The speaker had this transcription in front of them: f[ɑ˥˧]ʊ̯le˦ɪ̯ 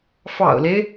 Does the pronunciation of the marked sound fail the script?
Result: yes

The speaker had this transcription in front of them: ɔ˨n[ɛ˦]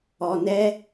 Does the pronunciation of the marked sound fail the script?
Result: no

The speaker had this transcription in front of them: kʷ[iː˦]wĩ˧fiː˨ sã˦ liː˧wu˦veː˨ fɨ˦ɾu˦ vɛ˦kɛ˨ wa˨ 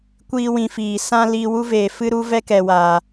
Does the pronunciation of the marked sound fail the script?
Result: no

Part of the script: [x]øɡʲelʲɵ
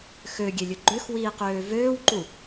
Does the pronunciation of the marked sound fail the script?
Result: no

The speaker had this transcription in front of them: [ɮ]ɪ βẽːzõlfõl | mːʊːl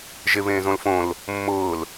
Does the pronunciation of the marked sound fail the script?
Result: yes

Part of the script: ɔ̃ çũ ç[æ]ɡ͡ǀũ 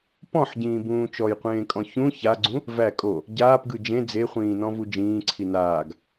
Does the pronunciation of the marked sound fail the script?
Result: yes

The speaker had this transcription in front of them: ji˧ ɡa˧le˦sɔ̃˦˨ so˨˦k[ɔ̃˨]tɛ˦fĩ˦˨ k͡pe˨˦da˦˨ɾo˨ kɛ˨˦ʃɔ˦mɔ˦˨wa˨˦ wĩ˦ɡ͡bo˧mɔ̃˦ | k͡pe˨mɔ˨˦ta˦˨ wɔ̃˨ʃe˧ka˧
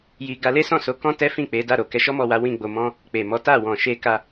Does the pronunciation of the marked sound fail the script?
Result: yes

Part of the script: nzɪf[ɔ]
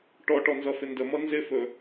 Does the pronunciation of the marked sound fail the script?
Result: yes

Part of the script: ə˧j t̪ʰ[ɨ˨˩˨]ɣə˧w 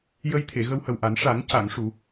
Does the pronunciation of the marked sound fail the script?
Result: yes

